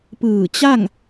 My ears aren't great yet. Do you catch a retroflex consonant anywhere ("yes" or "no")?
no